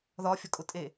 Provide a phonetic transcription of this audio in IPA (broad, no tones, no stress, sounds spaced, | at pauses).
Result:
ð ɒ fʲ ɒ kʼ ʊ tʼ e